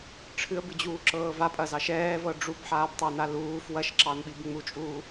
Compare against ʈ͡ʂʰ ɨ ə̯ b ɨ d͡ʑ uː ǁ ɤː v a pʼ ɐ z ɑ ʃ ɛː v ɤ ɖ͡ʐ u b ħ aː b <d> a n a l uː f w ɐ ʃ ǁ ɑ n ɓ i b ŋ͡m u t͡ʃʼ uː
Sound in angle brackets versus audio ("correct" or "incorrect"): incorrect